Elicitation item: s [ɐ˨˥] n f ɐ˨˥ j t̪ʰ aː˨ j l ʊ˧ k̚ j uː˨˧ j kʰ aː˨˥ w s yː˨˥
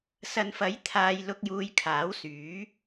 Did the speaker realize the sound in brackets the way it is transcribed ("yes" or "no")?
no